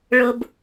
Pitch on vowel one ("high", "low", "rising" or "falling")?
high